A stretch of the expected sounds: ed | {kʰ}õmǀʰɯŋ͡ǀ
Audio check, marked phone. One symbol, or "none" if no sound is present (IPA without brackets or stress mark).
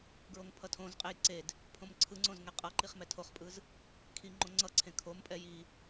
pʰ